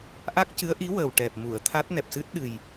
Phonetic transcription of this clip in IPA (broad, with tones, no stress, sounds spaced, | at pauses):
ʔ a˦˥ k̚ c ɨ˧˥ ə̯ ʔ i˧˥ w əː˨˩ w ʈ ɛ˨˩ p̚ m u˨˩˨ ə̯ t̪ʰ a˦˥ t̚ n ɛ˨˩ p̚ s ɨ˦˥ t̚ ɗ ɨ˨˩ j